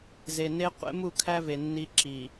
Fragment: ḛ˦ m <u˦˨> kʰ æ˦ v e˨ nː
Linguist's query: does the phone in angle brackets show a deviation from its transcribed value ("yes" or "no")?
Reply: no